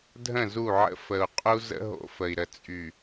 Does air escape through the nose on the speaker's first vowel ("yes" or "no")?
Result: yes